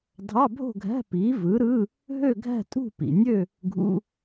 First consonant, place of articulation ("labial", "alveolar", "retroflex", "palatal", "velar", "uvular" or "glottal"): alveolar